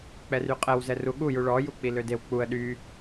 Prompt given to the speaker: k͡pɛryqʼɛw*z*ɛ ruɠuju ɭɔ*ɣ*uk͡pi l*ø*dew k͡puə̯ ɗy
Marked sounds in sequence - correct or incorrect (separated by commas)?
correct, incorrect, correct